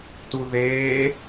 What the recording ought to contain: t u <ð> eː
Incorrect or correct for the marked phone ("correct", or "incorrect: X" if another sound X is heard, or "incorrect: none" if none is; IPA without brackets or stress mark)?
correct